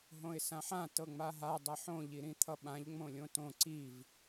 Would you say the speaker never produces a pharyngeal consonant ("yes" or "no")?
no